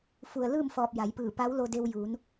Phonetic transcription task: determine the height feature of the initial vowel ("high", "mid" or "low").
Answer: high